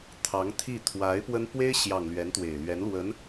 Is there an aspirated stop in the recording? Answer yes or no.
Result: yes